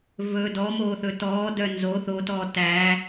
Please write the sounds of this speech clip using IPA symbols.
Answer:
v ɵ d ɔ m oː θ ɵ t ɔː d œ n z o θ o t ɔː t æ

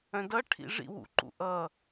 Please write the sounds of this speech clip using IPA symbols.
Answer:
œ̃ d ʌ ʈʰ ḭ ʐ ḭ w ṵ ǃ ṵ ʔ ʌ

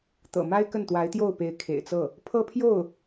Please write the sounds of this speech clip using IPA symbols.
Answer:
t̪ ɤ̰˨˩ m a˥ ɪ̯ k ə˥˩ n t̪ w a˧˥ ɪ̯ t̪ j o˥˩ ʊ̯ p e˧˥ ɪ̯ kʰ ḛ˨˩ ɪ̯ t͡s ɤ˥˩ | pʰ ɤ˥ pʰ j o˥˩ ʊ̯

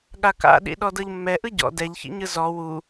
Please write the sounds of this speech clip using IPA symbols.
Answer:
ɠ a k a̰ ɗ ḭ ɗ ɔ d ɤ ʎ mː ɛ ʔ ɯ ɟ ɔ̰ d ɛ ʎ ç ḭ ɲ ɯ z ɔ w u

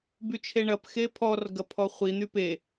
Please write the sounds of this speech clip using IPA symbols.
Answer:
b y t͡ʃʰ e ɳ ɐ p x e pʰ ɔ r ɡ ɐ pʰ ɔ χʷ i n̪ y p e

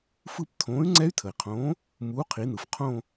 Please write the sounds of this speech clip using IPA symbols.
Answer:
f ɯ˥˧ p tʰ õː˨˥ y̯ ŋ͡ǀ ɛ˦˥ y̯ tʰ ə˩ i̯ qʰ õː˨˥ | m uː˨˥ qʰ i˩˧ n ɯ˩ f qʰ õ˥˧

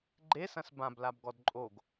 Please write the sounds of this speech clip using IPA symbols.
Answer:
ɡ͡ǃ e s ɐ̃ s b ã b l a b ɡ ɔ d ǃʼ o ɡ

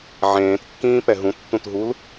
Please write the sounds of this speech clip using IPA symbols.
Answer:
ʕ ẽː t kː ĩː p ɛ ɦ ũ tː ũ t ɦ u l

